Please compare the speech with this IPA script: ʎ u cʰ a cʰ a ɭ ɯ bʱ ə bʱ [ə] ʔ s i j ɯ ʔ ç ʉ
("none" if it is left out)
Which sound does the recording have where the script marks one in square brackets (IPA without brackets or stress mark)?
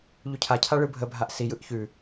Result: a